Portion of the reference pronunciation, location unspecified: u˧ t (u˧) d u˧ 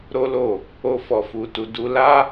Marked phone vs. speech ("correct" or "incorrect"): correct